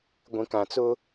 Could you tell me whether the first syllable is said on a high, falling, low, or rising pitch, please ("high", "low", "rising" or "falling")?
low